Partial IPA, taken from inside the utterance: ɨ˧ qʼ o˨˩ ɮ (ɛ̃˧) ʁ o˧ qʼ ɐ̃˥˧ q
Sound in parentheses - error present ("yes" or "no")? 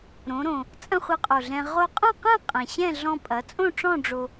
no